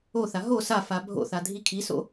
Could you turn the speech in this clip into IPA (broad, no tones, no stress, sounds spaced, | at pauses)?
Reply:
o θ a ɦ o s a f a bʱ o̰ θ a dʱ i kʰ i s o̰